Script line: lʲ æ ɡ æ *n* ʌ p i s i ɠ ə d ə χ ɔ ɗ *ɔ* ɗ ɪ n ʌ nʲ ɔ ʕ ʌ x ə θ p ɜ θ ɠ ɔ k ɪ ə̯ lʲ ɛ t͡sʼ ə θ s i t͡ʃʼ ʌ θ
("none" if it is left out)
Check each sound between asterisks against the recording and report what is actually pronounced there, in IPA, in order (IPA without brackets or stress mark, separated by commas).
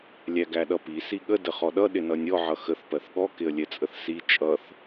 ɗ, ʌ